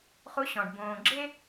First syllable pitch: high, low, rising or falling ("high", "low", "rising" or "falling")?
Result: high